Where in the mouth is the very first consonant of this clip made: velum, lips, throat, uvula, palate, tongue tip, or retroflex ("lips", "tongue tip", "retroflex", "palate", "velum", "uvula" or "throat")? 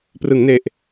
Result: lips